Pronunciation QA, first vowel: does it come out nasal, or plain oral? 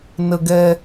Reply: oral